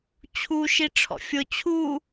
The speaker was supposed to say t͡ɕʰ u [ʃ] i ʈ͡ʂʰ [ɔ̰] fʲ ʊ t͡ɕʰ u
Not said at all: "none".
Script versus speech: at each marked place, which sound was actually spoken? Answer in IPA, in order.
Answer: ʃ, ɔ̰

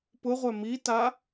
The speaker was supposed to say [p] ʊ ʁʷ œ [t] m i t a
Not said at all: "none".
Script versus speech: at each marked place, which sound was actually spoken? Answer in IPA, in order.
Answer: p, none

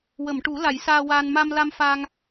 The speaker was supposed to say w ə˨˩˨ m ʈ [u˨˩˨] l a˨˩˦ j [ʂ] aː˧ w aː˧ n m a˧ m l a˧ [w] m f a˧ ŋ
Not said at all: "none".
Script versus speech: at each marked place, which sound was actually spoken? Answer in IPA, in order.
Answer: u˨˩˦, s, none

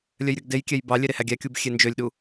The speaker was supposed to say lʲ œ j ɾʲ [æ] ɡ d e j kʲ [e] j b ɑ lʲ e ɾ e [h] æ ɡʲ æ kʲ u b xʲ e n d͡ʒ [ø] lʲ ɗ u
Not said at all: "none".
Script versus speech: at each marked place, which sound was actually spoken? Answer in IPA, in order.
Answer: œ, ɛ, h, ø

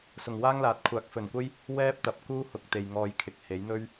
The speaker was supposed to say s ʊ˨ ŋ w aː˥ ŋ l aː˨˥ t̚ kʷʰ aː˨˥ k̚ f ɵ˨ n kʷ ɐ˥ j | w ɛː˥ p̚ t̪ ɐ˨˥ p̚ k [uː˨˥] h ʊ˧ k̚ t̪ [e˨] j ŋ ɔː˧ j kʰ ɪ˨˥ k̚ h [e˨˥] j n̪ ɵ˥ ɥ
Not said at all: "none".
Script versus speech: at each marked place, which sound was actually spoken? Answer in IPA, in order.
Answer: uː˥, e˨, e˨˥

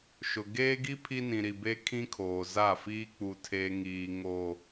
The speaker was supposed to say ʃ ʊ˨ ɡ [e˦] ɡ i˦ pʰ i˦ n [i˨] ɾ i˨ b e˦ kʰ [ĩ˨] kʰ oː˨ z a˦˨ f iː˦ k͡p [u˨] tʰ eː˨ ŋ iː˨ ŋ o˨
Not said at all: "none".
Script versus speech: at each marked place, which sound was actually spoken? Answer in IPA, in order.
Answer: eː˦, ĩ˨, ĩ˦, u˨

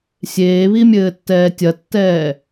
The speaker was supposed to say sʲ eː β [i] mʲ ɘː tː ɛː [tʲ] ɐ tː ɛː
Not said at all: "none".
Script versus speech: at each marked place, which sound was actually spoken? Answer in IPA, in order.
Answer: i, tʲ

